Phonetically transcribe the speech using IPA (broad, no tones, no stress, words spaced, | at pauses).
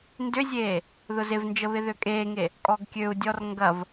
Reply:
ndʏzʲeː | ðʊzɪvnd͡ʒə βɪðøkʼeːŋe | kʼɔɡkʲøu̯dʲɔr ŋɡɐv